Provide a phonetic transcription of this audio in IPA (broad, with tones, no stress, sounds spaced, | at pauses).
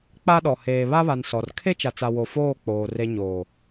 k͡p a˦ ɗ ɔ˨ h eː˨ β a˦ β a˨ n s ɔ˨ r kʰ e˦ t͡ʃ a˨ t͡s a˨ w o˨ f oː˦˨ k͡p oː˨ r e˦ ɲ oː˨